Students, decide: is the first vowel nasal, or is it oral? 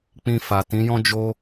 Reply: nasal